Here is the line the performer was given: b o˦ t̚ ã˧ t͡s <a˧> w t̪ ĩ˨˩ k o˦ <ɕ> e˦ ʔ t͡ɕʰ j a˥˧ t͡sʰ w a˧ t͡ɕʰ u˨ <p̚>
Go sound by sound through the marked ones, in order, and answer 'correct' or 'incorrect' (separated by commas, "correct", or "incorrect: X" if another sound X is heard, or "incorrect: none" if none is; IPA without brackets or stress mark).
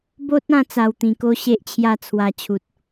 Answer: correct, correct, incorrect: t̚